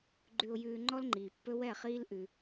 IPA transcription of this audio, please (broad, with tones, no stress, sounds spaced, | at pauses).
ɡ͡ǃ ʉ˧ ʊ̯ j ʉː˧ ŋ͡ǃ ɔ˦ l ŋ͡ǃ iː˨ pː ɵ˦ w ɛ˦˨ χ iː˦ l ʔ ʉ˧